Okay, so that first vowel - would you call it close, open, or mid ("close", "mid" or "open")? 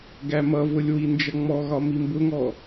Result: open